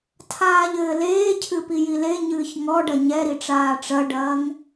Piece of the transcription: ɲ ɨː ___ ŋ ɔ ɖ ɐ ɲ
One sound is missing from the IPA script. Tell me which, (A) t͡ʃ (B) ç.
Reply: B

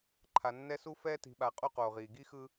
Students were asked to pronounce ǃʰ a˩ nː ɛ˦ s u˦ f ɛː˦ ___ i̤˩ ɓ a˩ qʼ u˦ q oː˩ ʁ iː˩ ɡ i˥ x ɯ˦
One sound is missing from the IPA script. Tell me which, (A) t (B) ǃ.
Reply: A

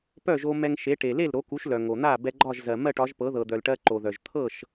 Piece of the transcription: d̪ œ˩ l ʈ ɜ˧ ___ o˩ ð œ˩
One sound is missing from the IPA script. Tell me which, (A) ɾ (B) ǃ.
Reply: B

